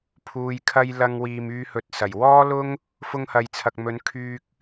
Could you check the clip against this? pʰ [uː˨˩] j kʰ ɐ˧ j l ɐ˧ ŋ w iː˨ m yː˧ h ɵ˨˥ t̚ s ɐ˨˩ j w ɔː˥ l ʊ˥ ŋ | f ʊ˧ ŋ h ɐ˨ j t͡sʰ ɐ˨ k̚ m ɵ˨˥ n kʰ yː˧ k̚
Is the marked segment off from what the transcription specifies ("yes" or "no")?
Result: yes